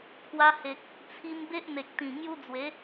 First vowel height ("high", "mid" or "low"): low